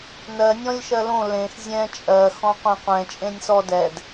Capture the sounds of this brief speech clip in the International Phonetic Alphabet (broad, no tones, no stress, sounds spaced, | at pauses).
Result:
n ɜ nʲ ɔ̃ lʲ ʃ ɜ l õ l ẽ x zʲ ɛ̃ t͡ʃʼ ɜ x ɔ̃ qʷ ẽ qʷ ɛ̃ t͡ʃʼ ẽ nʲ s ɔ d ɛ d